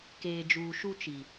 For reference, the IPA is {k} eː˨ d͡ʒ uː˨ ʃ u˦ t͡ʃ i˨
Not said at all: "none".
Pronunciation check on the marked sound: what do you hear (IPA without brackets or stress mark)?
k